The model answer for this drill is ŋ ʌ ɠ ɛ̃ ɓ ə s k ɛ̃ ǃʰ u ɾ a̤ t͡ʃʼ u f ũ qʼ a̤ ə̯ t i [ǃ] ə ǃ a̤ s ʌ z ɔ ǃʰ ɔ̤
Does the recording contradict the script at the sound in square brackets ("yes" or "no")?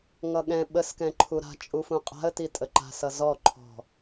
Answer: yes